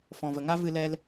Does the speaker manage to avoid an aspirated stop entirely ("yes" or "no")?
yes